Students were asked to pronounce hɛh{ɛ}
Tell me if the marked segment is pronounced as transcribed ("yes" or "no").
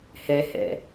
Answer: no